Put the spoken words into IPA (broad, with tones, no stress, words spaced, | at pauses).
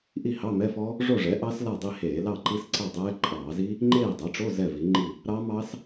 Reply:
ʔi˥˨hɑ˧˥˧mɛ˧˥˧fɔ˦˥ | ʐo˥˨ʐɛ˩˥ʔɑ˦˥s la˥˨dˤi˥˨heː˧˩˧ lɑ˥˨ǃi˦˥sǀa˥˨dˤɛː˦˥ ǃʼɑː˧˩˧zi˦˥ | ŋ͡ǃeː˥˨dˤɛ˩˥ʈ͡ʂo˧˥˧ zɛ˥˨vi˩˥ŋ͡ǃi˥˨ | ɾɑ˦˥mɑ˦˥s